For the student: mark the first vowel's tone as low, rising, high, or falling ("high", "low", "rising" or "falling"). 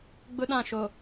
high